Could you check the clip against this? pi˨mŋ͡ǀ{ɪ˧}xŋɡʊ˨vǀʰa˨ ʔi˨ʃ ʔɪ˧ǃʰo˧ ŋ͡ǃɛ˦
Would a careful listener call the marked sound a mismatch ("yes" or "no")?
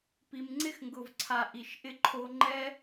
no